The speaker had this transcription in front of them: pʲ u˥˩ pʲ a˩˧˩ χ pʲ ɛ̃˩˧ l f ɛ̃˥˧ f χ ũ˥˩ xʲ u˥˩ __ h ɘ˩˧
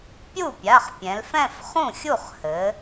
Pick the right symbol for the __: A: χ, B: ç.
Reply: A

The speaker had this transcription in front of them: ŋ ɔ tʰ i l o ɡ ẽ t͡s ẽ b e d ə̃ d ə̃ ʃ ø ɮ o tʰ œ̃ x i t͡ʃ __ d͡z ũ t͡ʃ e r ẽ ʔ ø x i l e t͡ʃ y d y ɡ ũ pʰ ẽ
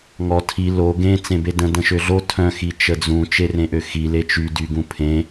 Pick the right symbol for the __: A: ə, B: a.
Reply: A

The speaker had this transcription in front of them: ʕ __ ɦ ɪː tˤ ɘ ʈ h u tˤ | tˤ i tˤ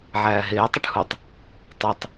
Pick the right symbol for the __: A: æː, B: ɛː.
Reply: A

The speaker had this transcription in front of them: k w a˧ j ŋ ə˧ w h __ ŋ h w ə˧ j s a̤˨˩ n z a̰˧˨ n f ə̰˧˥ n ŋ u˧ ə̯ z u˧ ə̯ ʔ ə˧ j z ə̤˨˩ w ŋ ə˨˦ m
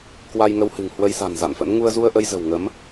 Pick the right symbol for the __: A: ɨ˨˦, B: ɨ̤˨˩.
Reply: B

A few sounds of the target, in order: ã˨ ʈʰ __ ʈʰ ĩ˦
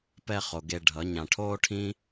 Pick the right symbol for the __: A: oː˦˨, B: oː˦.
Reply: B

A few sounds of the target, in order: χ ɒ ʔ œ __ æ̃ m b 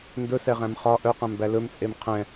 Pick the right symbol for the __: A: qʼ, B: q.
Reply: B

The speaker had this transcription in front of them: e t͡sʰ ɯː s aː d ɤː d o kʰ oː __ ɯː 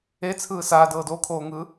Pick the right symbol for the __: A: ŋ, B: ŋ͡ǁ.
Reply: A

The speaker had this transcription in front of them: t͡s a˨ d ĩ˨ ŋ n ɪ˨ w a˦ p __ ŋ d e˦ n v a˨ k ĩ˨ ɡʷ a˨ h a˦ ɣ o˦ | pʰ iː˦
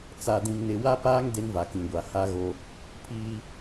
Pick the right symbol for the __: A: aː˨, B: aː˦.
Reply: B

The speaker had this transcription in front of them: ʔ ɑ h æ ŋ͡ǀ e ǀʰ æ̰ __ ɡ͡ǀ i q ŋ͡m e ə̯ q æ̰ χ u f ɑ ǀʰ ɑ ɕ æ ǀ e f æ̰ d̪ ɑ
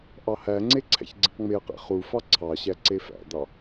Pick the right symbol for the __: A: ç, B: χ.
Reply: A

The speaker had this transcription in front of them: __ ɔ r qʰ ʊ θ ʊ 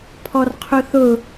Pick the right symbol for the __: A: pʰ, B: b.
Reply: A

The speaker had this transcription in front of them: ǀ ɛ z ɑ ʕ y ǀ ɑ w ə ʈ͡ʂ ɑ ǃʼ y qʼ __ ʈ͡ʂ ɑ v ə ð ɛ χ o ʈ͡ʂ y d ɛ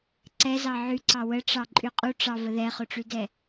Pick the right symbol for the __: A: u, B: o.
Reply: A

